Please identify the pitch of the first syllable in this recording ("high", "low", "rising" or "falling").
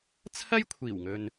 high